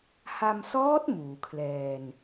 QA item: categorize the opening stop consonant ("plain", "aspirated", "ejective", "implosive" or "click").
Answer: plain